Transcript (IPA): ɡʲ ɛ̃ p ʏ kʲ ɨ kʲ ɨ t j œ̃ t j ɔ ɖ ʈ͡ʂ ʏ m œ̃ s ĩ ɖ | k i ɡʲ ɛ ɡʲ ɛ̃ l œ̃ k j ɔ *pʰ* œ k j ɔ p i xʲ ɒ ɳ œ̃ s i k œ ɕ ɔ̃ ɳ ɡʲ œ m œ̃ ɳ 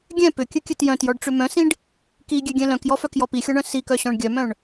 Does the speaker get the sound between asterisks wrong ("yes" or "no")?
yes